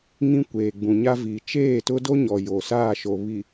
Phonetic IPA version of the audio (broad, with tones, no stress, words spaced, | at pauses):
ŋĩ˦kʷeː˨ɡ͡bũ˨ɲa˦ vi˨t͡ʃeː˦˨tʊ˦do˦ ɲɔ˨jo˨saː˦˨ʃo˨ βi˨